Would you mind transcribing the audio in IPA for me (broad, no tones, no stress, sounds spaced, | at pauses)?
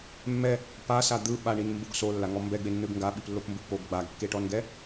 mː ɛ | p a s a d̪ ɯ ɓ a ɳ i n m b u ɡ s o lː a ŋ ɔ m b ɛ ɡ͡b e nː ɯ ɡ ŋ ɡ a ɓ i p lː o p m b u p o ɡ ɡ͡b a ɡ kː e ʈ ɔ n ɡ ɛ